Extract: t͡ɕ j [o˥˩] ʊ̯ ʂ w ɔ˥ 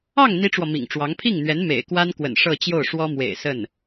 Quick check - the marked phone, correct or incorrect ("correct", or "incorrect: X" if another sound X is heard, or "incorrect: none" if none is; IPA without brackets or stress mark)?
correct